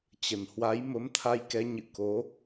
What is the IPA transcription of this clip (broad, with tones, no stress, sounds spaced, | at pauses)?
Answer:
t͡ɕ ə˨˩ n h w a˨˦ j m ə˨˦ m t̪ʰ a˧ j k ɛ˨˦ ɲ ɨ̰˧˨ k o˨˦